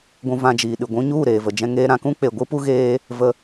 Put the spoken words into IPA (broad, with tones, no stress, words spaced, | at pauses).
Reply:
ɡʷũ˧vã˧d͡ʒiː˨ɗɨ˨ ɡʷũ˧ɲu˦˨ ɾeː˨və˨d͡ʒɛ̃˧ ŋeː˧ɾã˨kũ˦ k͡pe˨ɡʷɨ˦pu˦ ɣeː˦ | və˧